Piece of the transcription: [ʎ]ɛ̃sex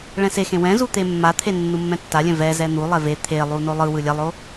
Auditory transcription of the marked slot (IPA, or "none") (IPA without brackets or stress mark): ɭ